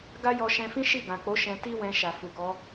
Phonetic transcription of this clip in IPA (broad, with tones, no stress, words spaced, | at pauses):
ɡa˦jɔ˧ʃɛ̃˧fĩ˦ ʃi˦˨ɡã˨k͡po˨˦ ʃɛ̃˧ti˦wɛ̃˧ ʃa˨fu˨kɔ˨˦